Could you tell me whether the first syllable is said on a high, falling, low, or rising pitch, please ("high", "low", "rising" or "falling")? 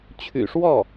low